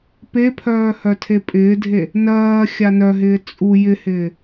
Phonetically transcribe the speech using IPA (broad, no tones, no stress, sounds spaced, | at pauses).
p e pʰ œː h œ tʰ e pʼ ɪː dʱ e | n ɜː xʲ a n œ ɦ ɪː t͡sʼ u j ɪ h ɪː